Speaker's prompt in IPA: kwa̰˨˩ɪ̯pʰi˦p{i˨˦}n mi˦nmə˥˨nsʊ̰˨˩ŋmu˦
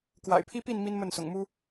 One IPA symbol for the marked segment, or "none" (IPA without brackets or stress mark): i˥˨